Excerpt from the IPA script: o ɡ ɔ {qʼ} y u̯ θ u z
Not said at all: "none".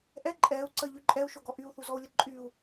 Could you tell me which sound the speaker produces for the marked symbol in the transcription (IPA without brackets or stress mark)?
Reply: ʔ